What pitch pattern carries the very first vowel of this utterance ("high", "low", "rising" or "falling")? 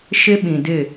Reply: high